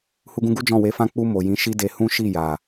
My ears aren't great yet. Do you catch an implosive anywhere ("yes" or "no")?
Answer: no